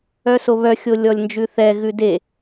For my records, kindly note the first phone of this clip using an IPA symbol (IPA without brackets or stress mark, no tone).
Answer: œ